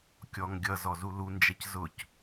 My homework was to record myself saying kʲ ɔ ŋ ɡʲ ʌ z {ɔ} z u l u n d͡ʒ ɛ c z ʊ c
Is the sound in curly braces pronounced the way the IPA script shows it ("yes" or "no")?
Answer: yes